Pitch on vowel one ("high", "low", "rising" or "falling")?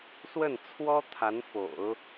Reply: falling